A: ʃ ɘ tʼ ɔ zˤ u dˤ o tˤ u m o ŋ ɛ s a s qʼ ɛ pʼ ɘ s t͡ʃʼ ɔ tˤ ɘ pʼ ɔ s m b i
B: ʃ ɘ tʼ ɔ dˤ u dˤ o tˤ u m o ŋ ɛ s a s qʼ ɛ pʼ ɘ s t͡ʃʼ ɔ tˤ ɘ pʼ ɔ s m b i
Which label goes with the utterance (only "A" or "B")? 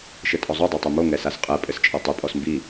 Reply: A